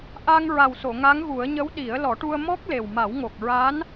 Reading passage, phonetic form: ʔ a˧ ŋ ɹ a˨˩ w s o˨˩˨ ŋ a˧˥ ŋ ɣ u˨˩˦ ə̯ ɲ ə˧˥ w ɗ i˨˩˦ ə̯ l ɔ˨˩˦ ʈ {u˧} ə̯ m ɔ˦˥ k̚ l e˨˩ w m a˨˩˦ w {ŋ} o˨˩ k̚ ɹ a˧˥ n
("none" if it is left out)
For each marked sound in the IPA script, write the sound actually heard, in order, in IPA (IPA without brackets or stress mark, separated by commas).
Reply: u˧, ŋ